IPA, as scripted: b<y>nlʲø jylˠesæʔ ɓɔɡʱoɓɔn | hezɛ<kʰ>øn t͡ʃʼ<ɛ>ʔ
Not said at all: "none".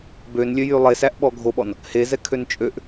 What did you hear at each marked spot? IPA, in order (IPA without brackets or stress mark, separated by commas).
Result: ø, kʰ, ø